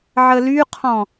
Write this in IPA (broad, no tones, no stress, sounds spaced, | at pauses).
ʕ ə l y qʰ ɔ̃